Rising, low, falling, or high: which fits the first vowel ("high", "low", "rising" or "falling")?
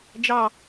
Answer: falling